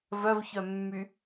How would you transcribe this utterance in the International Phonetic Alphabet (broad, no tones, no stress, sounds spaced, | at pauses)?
v œ v ç œ mː y